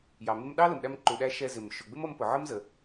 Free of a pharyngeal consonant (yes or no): no